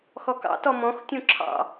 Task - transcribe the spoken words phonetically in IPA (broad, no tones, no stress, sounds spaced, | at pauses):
x ɔ k ɑ̰ t ɔ m ɔ̃ x tʲ ũ ǁʰ ɑ̰